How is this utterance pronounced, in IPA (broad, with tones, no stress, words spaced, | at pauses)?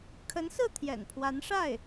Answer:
kʰə˧˥nsɹ̩˥˩ t̪ʰjɛ̰˨˩npʰwa˧˥nʂa˥˩ɪ̯